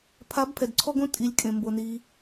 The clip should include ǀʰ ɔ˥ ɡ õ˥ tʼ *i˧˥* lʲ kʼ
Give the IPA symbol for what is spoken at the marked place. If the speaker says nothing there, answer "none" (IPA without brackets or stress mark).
i˧˥